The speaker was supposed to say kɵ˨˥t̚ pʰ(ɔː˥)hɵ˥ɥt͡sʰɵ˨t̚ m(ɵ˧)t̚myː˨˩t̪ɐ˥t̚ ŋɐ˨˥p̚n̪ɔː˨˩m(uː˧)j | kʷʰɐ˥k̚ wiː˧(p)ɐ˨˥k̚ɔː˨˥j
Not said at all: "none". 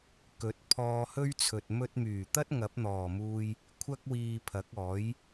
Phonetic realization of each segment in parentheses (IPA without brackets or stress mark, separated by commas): ɔː˧, ɵ˧, uː˧, pʰ